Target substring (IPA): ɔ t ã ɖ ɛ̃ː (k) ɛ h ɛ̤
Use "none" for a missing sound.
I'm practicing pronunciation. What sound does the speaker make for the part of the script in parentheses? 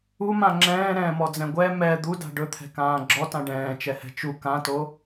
t͡ʃ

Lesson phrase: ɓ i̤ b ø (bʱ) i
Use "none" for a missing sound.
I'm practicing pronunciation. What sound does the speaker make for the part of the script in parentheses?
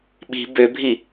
bʱ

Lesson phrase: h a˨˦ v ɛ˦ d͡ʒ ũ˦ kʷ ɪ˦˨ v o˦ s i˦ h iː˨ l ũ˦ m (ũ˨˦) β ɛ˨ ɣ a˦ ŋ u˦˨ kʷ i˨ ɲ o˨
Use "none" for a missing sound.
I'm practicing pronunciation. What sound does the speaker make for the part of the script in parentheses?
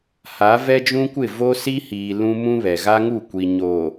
ũ˦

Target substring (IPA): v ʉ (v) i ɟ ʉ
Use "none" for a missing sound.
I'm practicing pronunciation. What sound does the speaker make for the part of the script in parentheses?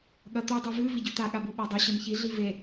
v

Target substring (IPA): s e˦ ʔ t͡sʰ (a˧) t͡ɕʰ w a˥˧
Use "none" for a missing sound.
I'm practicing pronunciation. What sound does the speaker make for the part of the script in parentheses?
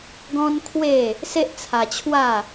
a˧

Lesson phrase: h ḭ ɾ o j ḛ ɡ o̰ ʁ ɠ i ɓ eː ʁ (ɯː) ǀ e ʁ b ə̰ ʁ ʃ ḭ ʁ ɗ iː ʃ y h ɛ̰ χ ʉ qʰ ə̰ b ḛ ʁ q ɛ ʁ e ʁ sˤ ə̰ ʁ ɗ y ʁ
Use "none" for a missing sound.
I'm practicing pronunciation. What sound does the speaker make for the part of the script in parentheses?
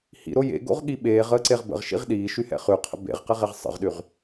əː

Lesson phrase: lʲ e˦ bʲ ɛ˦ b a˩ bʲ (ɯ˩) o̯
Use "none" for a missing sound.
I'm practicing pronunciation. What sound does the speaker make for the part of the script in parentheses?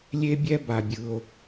ɯ˩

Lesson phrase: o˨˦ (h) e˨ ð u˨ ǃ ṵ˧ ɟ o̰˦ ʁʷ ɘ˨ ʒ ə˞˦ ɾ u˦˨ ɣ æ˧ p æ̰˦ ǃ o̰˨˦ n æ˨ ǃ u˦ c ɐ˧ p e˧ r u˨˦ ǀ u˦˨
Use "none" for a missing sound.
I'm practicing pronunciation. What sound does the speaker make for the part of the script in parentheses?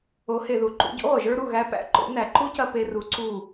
h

